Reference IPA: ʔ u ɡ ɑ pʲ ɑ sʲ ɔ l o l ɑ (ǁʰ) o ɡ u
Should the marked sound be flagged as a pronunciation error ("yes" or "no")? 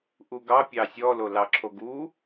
no